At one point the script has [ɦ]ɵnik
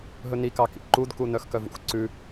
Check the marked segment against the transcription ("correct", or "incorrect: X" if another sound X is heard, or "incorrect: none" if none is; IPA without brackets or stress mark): correct